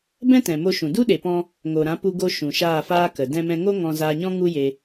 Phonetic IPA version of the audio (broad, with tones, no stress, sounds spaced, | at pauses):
b ɛ̃˦ t ɛ̃˨ m o˧ ʃ ũ˨ d u˦ ɗ e˨ p ɔ̃˧ | ŋ o˨ ɾ ã˨˦ p u˧ ɡ o˧ ʃ ũ˨ ʃ aː˦˨ f aː˦ k ə˨ d ɛ̃˧ m ɛ̃˧ ŋ o˦ ŋ ɔ̃˧ z aː˧ ɲ ɔ̃˦ ŋ u˦ j e˧